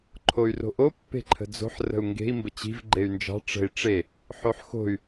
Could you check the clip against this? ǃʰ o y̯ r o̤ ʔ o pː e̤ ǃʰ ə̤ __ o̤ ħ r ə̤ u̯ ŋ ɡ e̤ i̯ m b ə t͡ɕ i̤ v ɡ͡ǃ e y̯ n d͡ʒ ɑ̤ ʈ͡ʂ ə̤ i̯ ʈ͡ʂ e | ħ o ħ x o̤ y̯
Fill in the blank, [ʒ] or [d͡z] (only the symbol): d͡z